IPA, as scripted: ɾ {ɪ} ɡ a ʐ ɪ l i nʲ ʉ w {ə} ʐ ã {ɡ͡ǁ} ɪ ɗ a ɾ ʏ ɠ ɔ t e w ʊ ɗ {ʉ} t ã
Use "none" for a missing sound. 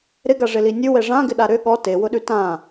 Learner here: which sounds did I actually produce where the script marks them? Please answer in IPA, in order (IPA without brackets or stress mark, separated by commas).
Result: ɪ, ɛ, ɡ, ʉ